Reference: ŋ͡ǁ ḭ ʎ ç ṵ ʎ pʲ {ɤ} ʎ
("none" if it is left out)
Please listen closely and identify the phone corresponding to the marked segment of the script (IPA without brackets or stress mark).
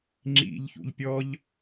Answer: ɔ